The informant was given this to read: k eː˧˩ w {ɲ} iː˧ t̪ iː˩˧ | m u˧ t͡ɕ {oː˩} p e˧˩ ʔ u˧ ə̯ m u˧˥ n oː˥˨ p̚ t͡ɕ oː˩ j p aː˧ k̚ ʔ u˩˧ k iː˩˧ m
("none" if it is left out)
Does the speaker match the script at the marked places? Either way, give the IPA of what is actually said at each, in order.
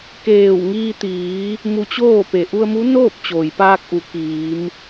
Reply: ŋ, oː˥˨

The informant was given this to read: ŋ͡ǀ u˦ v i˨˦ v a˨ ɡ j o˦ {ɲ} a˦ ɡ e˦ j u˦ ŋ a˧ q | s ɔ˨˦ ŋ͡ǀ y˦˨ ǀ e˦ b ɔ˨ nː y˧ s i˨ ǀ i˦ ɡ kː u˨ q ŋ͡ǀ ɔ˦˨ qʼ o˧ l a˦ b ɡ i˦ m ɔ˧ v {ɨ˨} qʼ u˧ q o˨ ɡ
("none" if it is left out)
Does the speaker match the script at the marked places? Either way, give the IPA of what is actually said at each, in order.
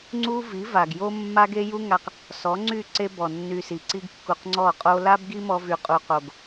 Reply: mː, y˨

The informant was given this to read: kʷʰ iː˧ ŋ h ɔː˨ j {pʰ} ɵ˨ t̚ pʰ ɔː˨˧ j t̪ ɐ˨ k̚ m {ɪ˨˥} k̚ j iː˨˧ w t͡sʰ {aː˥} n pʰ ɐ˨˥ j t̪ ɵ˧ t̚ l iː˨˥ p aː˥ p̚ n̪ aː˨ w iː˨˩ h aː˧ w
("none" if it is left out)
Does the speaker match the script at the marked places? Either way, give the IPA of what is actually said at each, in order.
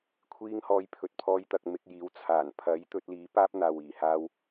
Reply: pʰ, ɪ˧, aː˨˩

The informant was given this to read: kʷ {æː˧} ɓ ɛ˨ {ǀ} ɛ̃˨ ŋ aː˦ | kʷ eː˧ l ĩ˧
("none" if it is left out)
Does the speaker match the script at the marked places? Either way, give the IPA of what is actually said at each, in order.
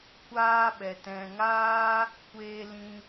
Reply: aː˧, t

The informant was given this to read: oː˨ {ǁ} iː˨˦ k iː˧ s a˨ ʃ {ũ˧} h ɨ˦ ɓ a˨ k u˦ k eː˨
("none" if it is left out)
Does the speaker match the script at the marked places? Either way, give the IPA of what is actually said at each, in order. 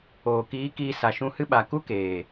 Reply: k, ũ˧

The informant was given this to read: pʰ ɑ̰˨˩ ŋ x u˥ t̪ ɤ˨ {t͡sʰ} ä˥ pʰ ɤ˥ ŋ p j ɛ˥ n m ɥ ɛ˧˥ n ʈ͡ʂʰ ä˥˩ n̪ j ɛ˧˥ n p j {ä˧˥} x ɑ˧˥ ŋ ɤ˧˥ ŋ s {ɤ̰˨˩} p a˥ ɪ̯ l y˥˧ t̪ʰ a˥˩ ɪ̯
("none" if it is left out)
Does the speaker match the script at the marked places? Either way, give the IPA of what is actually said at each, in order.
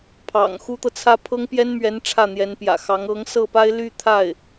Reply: t͡sʰ, ä̰˨˩, ɤ˥˩

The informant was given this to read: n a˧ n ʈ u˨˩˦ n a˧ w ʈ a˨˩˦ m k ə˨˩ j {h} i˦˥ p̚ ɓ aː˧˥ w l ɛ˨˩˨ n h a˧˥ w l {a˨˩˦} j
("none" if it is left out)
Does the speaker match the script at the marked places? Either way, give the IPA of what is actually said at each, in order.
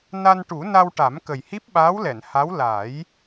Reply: h, a˨˩˦

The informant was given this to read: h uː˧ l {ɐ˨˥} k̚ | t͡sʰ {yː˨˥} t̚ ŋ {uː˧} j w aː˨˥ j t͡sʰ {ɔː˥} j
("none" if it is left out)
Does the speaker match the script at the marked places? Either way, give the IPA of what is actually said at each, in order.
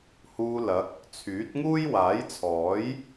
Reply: ɐ˨˥, yː˨˥, uː˥, ɔː˨˥

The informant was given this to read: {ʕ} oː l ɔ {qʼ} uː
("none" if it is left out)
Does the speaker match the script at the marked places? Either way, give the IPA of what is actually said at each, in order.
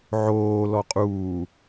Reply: ʕ, qʼ

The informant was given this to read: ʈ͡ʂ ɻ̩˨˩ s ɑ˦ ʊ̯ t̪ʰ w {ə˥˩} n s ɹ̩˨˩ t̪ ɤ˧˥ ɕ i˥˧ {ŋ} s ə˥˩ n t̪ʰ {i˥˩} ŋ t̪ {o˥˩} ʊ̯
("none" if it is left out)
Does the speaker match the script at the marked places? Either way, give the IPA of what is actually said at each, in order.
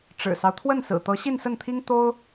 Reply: ə˥˩, n, i˥, o˥

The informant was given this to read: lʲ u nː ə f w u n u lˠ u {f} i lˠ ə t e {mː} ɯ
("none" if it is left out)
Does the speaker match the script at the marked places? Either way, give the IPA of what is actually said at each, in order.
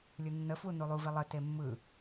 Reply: v, mː

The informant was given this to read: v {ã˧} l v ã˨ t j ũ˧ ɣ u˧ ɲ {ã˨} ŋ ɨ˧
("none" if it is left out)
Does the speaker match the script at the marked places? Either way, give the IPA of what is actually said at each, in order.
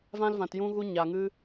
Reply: ã˧, a˨

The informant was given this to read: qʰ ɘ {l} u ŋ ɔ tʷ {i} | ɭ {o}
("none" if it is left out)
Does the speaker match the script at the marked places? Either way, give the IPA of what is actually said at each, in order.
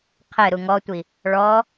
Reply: ɾ, i, ɔ

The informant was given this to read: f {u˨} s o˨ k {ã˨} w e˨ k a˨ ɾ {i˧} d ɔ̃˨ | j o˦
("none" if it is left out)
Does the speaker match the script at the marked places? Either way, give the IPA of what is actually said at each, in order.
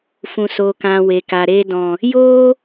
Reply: ũ˨, ã˨, e˧

